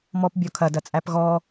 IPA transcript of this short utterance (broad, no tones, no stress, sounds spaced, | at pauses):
m ɔ p bʲ ɔ kʰ ɐ d ɐ t͡sʼ æ p ɣ ɔ